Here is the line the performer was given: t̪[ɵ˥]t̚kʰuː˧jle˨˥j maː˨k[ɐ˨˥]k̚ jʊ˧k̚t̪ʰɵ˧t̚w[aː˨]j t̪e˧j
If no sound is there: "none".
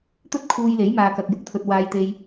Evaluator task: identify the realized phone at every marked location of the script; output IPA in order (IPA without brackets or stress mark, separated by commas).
ɵ˥, ɐ˨, aː˧